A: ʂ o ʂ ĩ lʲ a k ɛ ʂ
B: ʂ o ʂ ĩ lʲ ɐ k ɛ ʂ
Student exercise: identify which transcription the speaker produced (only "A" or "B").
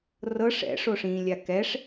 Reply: A